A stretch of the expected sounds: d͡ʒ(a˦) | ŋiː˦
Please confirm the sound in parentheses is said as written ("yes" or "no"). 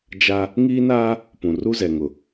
yes